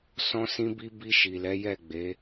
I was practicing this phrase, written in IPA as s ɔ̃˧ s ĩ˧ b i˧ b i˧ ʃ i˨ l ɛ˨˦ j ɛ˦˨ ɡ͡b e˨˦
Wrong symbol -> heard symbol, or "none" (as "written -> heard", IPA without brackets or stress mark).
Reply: none